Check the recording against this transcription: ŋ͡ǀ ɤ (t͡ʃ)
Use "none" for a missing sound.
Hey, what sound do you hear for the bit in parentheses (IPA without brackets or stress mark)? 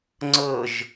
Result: ʒ